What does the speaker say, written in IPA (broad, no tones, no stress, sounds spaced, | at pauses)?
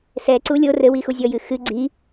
s ɛ ǀ u lʲ o r ɘ w i x u zʲ ɔ j ɨ x ɨ ɡ͡ǀ i